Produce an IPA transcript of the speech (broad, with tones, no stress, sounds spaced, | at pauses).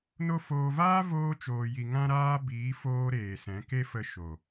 n o˦ f oː˧ v aː˦ v oː˧ t͡ʃ oː˨ j i˨ ŋ ã˦ ɾ aː˦ b iː˨˦ f oː˦ ɾ eː˨ s ɛ̃˨˦ k e˦ f ə˧ ʃ o˨